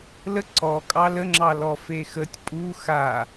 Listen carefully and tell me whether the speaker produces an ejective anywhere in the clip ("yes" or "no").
yes